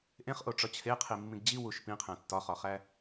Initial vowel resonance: nasal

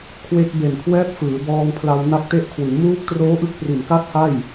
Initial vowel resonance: oral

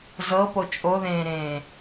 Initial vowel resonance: oral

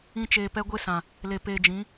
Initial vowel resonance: nasal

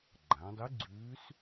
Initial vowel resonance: nasal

